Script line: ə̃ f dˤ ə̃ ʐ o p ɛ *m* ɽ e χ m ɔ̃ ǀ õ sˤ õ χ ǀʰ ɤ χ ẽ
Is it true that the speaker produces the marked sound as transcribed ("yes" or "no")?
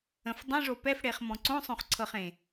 no